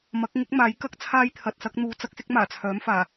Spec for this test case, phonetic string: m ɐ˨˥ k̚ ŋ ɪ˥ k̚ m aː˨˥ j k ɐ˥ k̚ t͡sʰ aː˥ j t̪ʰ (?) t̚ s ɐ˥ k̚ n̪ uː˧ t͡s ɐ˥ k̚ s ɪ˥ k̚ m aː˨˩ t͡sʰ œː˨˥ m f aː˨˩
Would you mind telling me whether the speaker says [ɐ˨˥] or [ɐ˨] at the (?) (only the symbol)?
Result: ɐ˨